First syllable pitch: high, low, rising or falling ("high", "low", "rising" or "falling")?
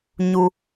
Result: high